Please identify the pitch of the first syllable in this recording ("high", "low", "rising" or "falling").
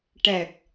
low